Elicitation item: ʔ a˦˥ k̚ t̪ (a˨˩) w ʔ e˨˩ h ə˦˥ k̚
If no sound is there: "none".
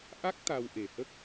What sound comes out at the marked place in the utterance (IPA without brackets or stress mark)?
a˧